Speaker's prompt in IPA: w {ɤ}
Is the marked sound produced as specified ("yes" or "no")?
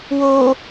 no